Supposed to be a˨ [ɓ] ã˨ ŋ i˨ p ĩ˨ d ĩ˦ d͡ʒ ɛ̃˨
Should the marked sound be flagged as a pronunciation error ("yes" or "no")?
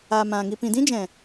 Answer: yes